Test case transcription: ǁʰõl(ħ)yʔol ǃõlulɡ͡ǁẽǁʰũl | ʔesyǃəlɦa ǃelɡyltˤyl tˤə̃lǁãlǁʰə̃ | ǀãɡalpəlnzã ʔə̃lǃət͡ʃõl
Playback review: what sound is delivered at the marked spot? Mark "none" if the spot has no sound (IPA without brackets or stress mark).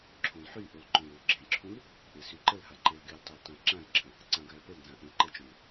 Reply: ħ